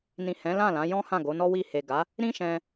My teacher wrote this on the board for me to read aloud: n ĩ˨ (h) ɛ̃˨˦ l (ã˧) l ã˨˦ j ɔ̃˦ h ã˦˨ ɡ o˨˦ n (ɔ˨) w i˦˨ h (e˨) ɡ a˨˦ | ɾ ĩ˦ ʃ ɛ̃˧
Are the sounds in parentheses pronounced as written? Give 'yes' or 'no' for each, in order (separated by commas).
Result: yes, no, no, yes